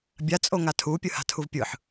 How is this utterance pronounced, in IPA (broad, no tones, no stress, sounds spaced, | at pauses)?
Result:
bʲ a t͡sʼ o ŋ a tʰ u pʲ ɯ h a̤ tʰ u v pʲ ɯ ħ